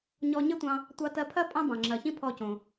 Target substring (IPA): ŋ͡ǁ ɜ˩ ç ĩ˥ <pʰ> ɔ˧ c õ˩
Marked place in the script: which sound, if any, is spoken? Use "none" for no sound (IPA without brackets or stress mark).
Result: pʰ